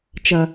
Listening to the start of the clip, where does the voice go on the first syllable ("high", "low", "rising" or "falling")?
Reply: low